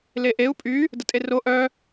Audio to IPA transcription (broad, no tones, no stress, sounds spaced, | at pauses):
l e ʔ e u̯ pʼ y | d ə tʼ e r o ʔ œ